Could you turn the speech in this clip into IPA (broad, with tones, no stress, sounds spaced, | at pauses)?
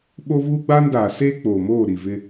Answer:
ɓ o˦ v uː˦ ɡ͡b aː˦ n d aː˨ s eː˦ k͡p oː˨ m oː˦˨ ɾ i˨ v ɪ˦